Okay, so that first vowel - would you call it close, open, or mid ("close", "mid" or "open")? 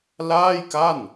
open